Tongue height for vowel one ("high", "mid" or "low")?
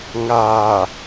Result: low